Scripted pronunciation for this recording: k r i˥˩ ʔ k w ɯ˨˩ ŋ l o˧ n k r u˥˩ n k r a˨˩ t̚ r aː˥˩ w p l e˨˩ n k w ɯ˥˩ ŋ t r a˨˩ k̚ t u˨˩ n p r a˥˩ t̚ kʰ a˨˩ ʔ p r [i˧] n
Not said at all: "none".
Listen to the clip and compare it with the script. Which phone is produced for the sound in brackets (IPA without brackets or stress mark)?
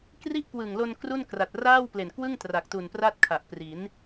i˩˦